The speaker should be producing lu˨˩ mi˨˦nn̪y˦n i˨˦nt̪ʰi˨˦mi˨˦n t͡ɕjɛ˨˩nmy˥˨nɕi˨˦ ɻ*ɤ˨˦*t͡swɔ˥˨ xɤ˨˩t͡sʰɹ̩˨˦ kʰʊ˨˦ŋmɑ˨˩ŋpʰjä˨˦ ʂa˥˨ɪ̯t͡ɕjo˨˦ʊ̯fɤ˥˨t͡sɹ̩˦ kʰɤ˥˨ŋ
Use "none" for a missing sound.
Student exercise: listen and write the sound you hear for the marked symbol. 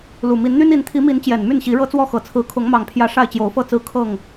ɤ˦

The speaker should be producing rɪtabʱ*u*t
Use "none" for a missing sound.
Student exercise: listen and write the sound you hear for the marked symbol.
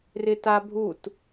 u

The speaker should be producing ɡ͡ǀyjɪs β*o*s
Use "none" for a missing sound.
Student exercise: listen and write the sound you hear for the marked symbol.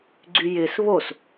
o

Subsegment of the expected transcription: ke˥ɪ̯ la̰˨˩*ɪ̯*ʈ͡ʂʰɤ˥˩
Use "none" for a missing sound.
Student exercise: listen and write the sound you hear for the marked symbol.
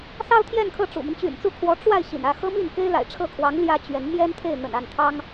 ɪ̯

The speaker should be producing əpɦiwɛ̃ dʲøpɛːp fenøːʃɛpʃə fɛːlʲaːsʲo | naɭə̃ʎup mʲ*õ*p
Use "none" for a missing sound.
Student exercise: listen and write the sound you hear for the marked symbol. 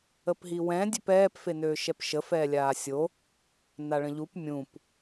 ũ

